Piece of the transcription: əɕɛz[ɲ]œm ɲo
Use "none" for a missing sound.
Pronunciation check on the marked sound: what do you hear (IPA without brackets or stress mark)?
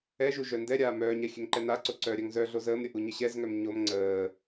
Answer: ŋ